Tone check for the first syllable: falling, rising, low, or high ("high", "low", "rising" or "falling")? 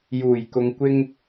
low